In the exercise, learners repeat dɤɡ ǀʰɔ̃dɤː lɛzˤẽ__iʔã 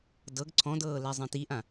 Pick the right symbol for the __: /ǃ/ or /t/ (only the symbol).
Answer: t